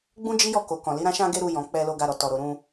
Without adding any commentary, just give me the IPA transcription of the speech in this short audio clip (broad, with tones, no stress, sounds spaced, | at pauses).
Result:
ɡ͡b ũ˦ d͡ʒ i˦ j ɔ˦˨ k o˨ k ɔ̃˨ l i˨˦ ɾ ã˧ ʃ ã˧ ɡ e˧ ɾ u˧ j ɔ̃˨ k͡p ɛ˧ l o˧ ɡ a˧ ɾ ɔ˨ t ɔ˨ ɾ o˨ ɾ ũ˧